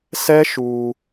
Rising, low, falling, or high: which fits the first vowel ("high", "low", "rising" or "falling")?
high